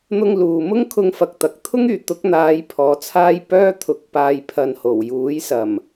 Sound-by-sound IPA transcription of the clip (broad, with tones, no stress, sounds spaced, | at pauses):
n̪ ʊ˧ ŋ l uː˨ m ʊ˥ ŋ kʰ ʊ˧ ŋ f ɐ˨ k̚ t̪ ɐ˨ k̚ t̪ʰ ʊ˥ ŋ yː˨˩ t̪ ʊ˨˥ k̚ n̪ aː˨˧ j pʰ ɔː˨˥ t͡sʰ aː˥ j p œː˥ t̪ʰ ʊ˨˥ k̚ p aː˨ j pʰ ɐ˨ n h o˨˩ w j uː˨˥ j s ɐ˨˩ m